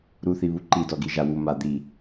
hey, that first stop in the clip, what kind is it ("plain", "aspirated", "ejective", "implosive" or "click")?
click